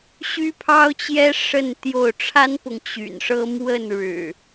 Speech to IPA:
ɕ y˦ pʰ ɑ˦ ʊ̯ t͡ɕ j ɛ˦ ʂ ə˥˨ n t̪ j o˥˨ ʊ̯ ʈ͡ʂʰ a˦ n p ʊ˨ ŋ t͡ɕ y̰˨˩ n ʂ ɤ˦ m w ə˥˨ n ɻ ɻ̩˨˩

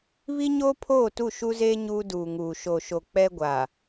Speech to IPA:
β i˦ ɲ oː˦ pʰ oː˦˨ t u˦˨ ʃ u˦ z eː˦ ɲ uː˦ d uː˨ ŋ uː˨ ʃ o˨ ʃ o˨ k͡p ɛ˦ ɡʷ aː˨

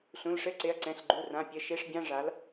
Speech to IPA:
ɬ ũ˩˧˩ l ʂ ɘ˧˥˧ ǀ e˩˧˩ ɐ̯ ǀ ɛ̃˩˧˩ ɬ ɡ͡ǃ u˩˧˩ r ã˩˧˩ pʲ ɘ˩˧˩ ʃ e˧˥˧ ʂ bʲ ã˧˥˧ ʐ a˩˥ l

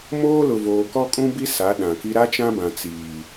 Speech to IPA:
m oː˦ l ʊ˨ v oː˨ k ɔ˦ kʼ ũ˦ b i˦ s a˨˦ ɗ ã˨ k i˦ ɾ a˦ t͡ʃ ã˦ b ã˨ t͡s iː˨

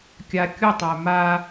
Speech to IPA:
kʲ a kʲ u tˤ æ m a

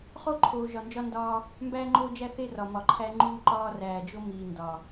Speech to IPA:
χ o˦ ǃʰ oː˨ ʒ ɒ˨ n d͡ʒ ɒ˦ n d ɒː˦ | m b æː˦ ŋ͡ǃ oː˦ d͡ʒ æ˦ θ e˦ r ɒ˨ m ɒ˨ ǃʰ æ˦ ŋ͡ǃ uː˦ ǃ ɒː˦ r æː˨ d͡ʒ o˦ m iː˨ n d ɒ˨

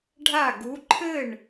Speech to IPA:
ɖʱ a˥˩ ɡ u˨˥ ǃʰ ɘ˥˩ ɳ

